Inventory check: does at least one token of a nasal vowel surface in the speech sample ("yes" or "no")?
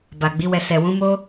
yes